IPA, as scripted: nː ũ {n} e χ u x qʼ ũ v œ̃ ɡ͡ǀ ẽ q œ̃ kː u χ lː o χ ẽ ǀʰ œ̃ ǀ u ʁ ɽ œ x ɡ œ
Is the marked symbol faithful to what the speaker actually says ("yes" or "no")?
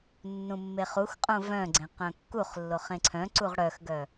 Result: no